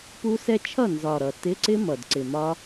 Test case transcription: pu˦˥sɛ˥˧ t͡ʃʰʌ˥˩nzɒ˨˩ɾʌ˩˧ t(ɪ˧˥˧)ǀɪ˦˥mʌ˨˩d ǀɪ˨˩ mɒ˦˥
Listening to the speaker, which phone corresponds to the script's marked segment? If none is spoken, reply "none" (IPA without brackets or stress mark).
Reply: ɪ˧˥˧